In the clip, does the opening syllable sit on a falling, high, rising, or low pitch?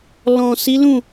low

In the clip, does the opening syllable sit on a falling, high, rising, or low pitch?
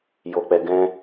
low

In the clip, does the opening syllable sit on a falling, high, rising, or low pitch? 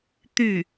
falling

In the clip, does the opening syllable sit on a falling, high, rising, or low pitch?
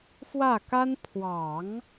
falling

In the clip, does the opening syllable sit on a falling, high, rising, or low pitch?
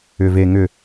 low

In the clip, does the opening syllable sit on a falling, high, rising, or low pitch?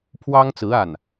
high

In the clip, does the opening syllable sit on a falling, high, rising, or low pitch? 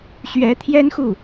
rising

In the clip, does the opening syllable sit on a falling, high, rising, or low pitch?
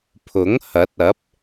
rising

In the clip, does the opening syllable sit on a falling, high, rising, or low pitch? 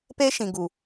high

